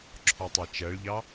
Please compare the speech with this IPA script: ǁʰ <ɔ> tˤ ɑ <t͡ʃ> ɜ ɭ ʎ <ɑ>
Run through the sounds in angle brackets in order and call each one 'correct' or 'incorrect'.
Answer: correct, correct, correct

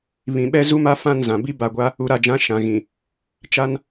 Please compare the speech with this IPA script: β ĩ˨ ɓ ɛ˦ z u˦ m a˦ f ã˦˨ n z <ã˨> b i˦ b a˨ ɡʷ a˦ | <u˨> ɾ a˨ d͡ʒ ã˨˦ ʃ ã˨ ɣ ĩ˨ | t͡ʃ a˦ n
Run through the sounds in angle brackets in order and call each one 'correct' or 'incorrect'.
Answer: correct, correct

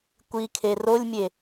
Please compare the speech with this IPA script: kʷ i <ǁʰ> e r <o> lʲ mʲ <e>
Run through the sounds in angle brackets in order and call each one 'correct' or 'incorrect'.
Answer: incorrect, correct, correct

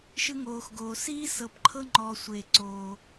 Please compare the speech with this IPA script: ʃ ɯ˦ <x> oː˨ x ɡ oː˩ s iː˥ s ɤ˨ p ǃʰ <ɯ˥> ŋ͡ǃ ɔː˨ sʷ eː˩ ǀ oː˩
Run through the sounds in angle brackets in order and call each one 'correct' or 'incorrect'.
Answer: incorrect, incorrect

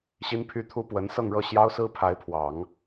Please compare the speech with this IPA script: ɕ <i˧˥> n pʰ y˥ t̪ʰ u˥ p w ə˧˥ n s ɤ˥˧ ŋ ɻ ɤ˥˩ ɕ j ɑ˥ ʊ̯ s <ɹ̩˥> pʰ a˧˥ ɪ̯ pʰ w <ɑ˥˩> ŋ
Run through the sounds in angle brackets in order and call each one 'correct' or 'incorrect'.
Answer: incorrect, correct, incorrect

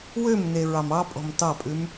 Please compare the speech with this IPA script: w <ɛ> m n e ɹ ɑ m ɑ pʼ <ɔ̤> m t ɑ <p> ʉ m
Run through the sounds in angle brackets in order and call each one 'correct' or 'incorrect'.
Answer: incorrect, correct, incorrect

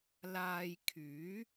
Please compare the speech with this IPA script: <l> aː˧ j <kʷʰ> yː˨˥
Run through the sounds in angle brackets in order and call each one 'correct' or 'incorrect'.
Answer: correct, incorrect

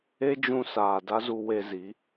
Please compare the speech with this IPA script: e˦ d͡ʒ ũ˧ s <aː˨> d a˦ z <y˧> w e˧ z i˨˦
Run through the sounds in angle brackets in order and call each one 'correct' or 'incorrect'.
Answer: correct, incorrect

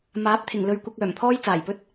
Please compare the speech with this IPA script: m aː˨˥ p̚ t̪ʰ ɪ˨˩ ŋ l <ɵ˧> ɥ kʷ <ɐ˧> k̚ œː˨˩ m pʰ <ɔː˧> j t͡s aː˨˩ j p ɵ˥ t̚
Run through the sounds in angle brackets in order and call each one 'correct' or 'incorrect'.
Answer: correct, correct, incorrect

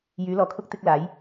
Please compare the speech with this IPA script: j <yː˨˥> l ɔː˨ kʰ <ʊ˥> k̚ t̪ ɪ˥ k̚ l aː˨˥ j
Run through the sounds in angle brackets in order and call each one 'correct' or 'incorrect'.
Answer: correct, correct

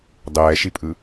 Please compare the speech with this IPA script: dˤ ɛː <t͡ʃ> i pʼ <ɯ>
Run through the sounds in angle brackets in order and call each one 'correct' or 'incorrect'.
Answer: incorrect, correct

